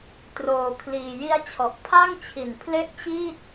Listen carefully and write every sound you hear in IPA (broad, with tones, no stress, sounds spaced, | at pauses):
t r oː˧ kʰ l iː˧ j i˦˥ a̯ t͡ɕʰ ɔ˨˩ ʔ pʰ a˥˩ ŋ t͡ɕʰ i˨˩ n pʰ l e˥˩ ʔ t͡ɕ iː˥˩ t̚